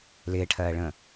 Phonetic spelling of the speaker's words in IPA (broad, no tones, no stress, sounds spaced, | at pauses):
l ɪː ʈʰ ɜː ɭ ə̃ː